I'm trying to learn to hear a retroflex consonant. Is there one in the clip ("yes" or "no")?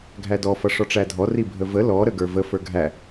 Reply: yes